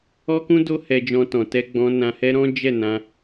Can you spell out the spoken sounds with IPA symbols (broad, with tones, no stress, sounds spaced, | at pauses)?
ɔ˦ k ũ˦ d o˦ h ɛ˧ d͡ʒ ɔ̃˧ t ɔ̃˨ t ɛ˧ ɡ͡b ɔ̃˧ n ã˧ h ɛ˦ ɾ ɔ̃˦ d͡ʒ ɛ˦˨ n ã˧